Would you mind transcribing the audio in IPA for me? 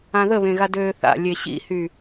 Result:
ãðəβẽ ɣadøːθa̰lʲe ɕḭhy

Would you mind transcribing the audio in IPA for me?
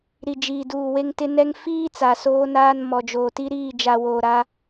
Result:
ɾi˨d͡ʒiː˨duː˨ we˦ŋtɪ˦ nɛ˦ŋ fiː˦ t͡sa˨soː˦naː˦n mɔ˨d͡ʒoː˨ti˦ ɾiː˦˨d͡ʒa˨ woː˨ɾa˦

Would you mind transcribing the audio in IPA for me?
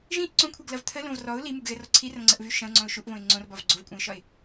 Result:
ʒĩʔ ǀõkʷʰɛɡlɐv t̪ʰəlõv rɔʊ̯ limuɡɣɛrɔ ǀʰirɐ̃ŋ͡ǀəʔvy ʃɐ̃ʊ̯ŋ͡ǀɔ̃ʊ̯ ʃuʔvõɪ̯ ŋ͡ǀõrbɒv ɡ͡ǀovkʷʼɛ̃ɪ̯ʃɒɪ̯

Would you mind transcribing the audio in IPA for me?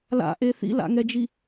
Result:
la̰ʔe θḭla̰ŋɛd͡ʒi

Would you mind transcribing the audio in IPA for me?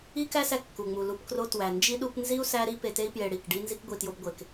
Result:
i˦kæ˦sæ˧ kːu˨ŋ͡mu˨lu˧pkro˦ twæ˨nd͡ʒi˦ ɗu˦p nzi˦u̯ sæ˦ɾi˦pe˧te˦i̯ pje˧ɽi˦˨kɖi˦ nzi˦kɡʷi˧tjo˦bɡʷe˧k

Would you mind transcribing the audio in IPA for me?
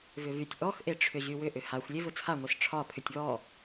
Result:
vʏvytʲ ʔɔxʔeʈ͡ʂʰʏ ʑywʏʔʏ haxʷ lʲevʊt͡sʰaŋʷes ʈ͡ʂʰɒ pʰʏtʲβɔ

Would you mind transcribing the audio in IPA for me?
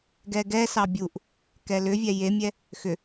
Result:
ɡɛɡɛsɑ bʲuʔ | kɛlʏvʲɛ jemʲɛ | xʏ

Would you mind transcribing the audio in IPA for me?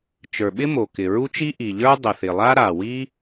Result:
t͡ʃə˞˩ɓɪ˥mo˩kɪ˩ ɹu˥t͡ʃi˥ ʔi˩ʎə˞˥ dˤə˩θɪ˩lˠa˥ ɾa˩wi˥

